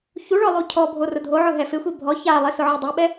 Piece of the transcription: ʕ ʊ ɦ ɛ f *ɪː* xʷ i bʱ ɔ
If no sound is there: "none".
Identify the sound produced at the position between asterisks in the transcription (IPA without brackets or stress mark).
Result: ɪ